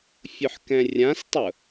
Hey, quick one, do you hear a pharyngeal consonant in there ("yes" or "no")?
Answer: yes